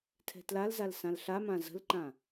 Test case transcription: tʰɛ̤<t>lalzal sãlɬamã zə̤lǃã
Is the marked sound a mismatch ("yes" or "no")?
no